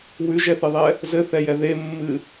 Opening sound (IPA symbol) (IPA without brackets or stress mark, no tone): w